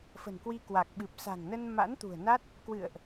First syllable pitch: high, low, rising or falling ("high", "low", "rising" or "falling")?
low